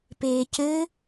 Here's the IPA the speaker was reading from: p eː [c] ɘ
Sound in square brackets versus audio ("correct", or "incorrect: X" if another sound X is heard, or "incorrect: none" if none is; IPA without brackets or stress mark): correct